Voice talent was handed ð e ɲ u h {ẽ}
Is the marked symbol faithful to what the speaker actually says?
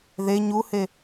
no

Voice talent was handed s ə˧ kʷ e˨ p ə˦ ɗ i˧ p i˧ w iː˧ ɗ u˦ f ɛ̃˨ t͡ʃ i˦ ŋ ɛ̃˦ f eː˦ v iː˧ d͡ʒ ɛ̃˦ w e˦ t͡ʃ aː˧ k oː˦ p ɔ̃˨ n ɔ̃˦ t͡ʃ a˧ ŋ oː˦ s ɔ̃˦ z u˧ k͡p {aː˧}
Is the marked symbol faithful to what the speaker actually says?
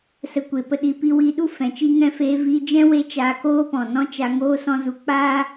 no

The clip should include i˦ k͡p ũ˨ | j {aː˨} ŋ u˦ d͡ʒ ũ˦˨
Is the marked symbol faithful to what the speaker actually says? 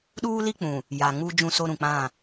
no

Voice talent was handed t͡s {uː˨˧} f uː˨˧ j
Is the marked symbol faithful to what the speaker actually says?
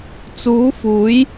yes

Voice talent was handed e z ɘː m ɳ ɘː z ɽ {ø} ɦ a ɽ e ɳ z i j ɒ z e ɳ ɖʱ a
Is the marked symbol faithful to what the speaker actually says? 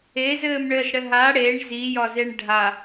no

